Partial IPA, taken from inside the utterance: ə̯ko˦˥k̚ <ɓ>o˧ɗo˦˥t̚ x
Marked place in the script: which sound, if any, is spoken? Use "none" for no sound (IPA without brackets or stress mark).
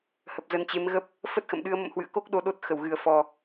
ɗ